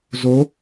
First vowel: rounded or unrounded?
rounded